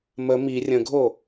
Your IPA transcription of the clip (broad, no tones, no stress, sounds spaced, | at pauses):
m ə m i rʲ ə̃ ɡʱ o